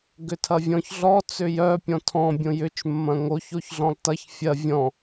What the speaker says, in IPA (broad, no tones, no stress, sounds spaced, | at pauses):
ɡ ʏ tʰ ɐ vʲ ɔ̃ ç ɮ ɔ t͡s ʏ j œ pʲ ɔ̃ tʰ ɔ̃ bʲ õ j ʏ t͡ʃ mː ɐ̃ ŋ o ç o ç ɮ ɔ̃ lˠ t ɐ ç fʲ ɐ vʲ ɔ̃